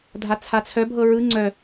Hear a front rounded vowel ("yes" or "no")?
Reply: yes